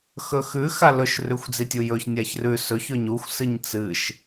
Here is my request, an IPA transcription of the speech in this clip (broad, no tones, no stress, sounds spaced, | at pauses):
x ɵ x ʉ x a l ɵ ʃ r ʉ xʷ d͡z i tʲ u j ɵ ç nʲ a ç r ʉ s ɵ ç ɵ ɲ u xʷ s ɨ ɲ t͡s ɨ ʃ